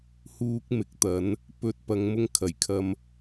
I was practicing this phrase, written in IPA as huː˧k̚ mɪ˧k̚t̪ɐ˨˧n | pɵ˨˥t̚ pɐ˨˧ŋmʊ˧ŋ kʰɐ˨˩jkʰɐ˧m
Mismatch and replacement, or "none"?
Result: ɪ˧ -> ɪ˨˥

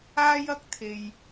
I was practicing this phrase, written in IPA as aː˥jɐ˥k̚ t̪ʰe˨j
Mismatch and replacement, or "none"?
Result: none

